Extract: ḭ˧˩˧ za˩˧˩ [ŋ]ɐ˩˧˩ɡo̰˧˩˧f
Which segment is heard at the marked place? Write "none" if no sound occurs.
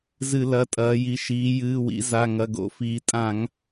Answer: ŋ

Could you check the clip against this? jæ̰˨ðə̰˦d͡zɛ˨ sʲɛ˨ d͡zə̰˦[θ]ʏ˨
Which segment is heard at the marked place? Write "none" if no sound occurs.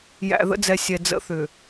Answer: θ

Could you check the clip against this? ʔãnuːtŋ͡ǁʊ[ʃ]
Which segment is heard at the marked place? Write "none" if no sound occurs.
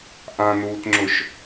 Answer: ʃ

